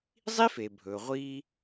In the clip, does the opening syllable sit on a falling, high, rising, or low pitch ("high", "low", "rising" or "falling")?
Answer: high